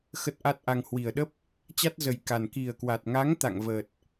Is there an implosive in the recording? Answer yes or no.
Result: yes